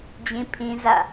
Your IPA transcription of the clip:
d͡ʑ ĩ˦ pʰ ĩ˦ z ä̰˦˨

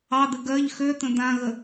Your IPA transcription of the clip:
ɑ d̪ ɘ ɡ ɜ ʎ x ø t̪ ə̃ d̪ ã ɣ ə

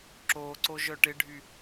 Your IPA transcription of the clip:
ǁ oː ǀ o ʒ œ ʈ ɪ ɖʱ y

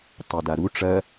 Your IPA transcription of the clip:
tˤ o d a ɾ u ʈ͡ʂ ɐ

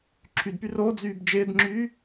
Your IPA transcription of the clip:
ǁʰ y d p y r o d͡z yː b d͡ʒ ɪː d ŋ͡ǁ yː

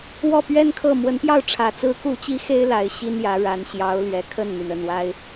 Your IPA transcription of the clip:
w ɔ˥˩ p ɥ ɛ˥ n kʰ ɤ˥˩ m w ə˧˥ n p j ɑ˥˩ ʊ̯ ʈ͡ʂʰ ä˨˩ t͡s ɹ̩˧˥ k u˧˥ t͡ɕ i˧˥ x e˥ ɪ̯ l a˧˥ ɪ̯ ɕ i˥ n j ä˧˥ ɻ a˧˥ n ɕ j ɑ˧˥ ʊ̯ l ɥ ɛ˨˩ kʰ ə˥˩ n n̪ y˩ n ə˥˩ n w a˥ ɪ̯

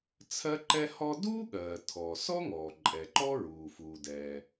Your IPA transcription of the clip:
t͡sʰ ɜ˥ ǃ ɛ˥ h ɔ˥ d uː˥ ɠ ɜː˩ tʰ ɔː˩ s ɔ˥ ŋ ɔː˩ ǃʼ ɛ˩ ǃ ɔː˥ ɹ uː˩ f uː˩ d ɛː˩

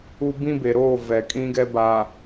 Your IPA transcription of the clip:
u˦ b ĩ˦ b e˨ ɾ oː˦˨ v ɛ˨ kʼ ĩ˦ ɡ ɛ˦ b a˨

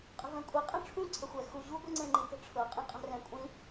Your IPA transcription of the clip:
qʼ ə̤ v ɛ̃ kʷʼ i qʼ ɛ̃ ʈ͡ʂʰ ũ ǀʰ ə xʷ ɛ x u ʑ u ɡʷ i ŋ͡ǀ ẽ ŋ͡ǃ i t ə̤ ʈ͡ʂʰ ɤ qʼ ẽ qʼ ɛ̤ r ɛ̃ kʷʼ ĩ

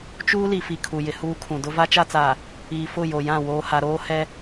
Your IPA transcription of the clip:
t͡ʃ uː˦ l i˨ f i˨ kʰ u˨ j ɪ˨ h uː˦ kʰ ũ˨ d ʊ˦ v a˦ t͡ʃ a˦ t͡s aː˨ | iː˨ f ʊ˦˨ j o˨ j ã˦˨ w oː˦ h a˦ ɾ oː˦ h ɛ˦

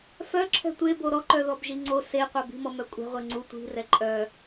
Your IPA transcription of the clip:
f œ ǁʰ ɛ̤ tʷ e b o ɾ ɔ ǃ œ ð ɔ b ʒ i ŋ͡ǀ o s e qʷ ɛ b i̤ m ɔ m œ kʷʼ ɛ̤ ʁʷ e ŋ͡ǀ u tʷ i̤ r ɛ ǃʼ œ

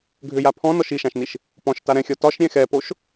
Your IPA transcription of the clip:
ɡʱ ʏ j a pʰ ɔ̃ n ɔ ʃ i ʃ ã ʃ n i ʃ | p ɔ̃ ʃ t a ɾ ɛ̃ xʲ ɔ t ɒ ʃ ɾʲ ɛ̃ x ɛ p o ʃ

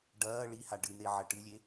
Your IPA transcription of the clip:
ɖ ɐː ɭ i h a ɖ ɨ n̪ e ʕ ɐ ʈ ɨ lʲ e

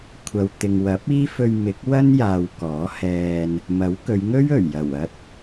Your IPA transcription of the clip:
kʷʰ ɐ˨ w t̪ ɪ˨ ŋ w ɐ˨˥ p̚ iː˥ f ɵ˧ ɥ m ɪ˨˥ k̚ w ɐ˥ n j aː˨ w k ɔː˨˥ h ɛː˧ n | m ɐ˨˥ w k ɵ˨˧ ɥ ŋ ɵ˥ ɥ ɵ˨˩ ɥ j ɐ˨˩ w ɐ˥ t̚

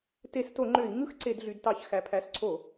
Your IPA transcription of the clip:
t e˧˩˧ s t o˧˩˧ ŋ͡ǃ ø˧˩˧ i̯ ŋ ɯ˥˧ x ǀ e˧˩˧ d ɮ y˩˧ d t ɑ˧˩˧ ç x æ˩˧ pʰ æ˩˧˩ s ǀʰ o˧˩˧

